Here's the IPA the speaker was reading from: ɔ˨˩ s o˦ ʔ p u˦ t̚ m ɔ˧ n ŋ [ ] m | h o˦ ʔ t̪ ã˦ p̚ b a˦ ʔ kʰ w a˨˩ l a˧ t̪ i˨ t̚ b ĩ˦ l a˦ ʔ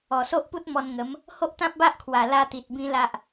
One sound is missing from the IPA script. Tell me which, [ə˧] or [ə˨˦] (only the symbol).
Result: ə˨˦